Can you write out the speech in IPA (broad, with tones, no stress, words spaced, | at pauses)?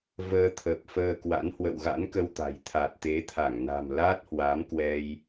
vəː˧t̪ʰə˨˩p̚fəː˧kwa̰˧˥n hwə̰˧˨wɣa̰˧˥nkə˧wt̪a̤˨˩j t̪ʰa˨˩t̚t̪e˨˦t̪ʰa˧˩ŋ na̤˨˩m la˦˥t̚hwa˨˦m kwɛ˧j